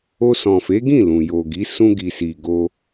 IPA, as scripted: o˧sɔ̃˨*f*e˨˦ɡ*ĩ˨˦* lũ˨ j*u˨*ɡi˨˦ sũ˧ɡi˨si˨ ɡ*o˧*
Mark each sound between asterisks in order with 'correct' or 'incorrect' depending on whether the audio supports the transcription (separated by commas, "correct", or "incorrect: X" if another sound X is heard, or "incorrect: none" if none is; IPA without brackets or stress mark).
correct, incorrect: ĩ˦˨, incorrect: o˨, correct